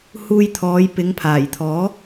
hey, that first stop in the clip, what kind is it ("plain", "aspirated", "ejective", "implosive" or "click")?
aspirated